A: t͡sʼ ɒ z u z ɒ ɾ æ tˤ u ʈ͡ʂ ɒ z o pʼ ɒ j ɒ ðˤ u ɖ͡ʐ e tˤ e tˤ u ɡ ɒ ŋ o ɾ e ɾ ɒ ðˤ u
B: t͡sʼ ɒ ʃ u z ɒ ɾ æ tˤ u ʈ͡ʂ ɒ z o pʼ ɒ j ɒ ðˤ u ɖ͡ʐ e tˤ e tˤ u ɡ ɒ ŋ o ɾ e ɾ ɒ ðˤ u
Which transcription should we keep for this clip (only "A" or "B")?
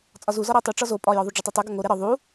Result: A